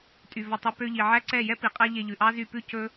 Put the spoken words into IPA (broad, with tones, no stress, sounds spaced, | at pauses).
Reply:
tʼ y˨ v ɔ˨ tˤ i˨ p ø˧ ʎ i˨ ʕ æ˦ ǀ ɛ˦˨ j ɛ˦ p i˨ qʼ æ˦ ʎ e˧ ʎ ʉ˨ ʔ ɑ˦ z y˦˨ p ʉ˦ c ɵ˦